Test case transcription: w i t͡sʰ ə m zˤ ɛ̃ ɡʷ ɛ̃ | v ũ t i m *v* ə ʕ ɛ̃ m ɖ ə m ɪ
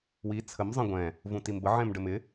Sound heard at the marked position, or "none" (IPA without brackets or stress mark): b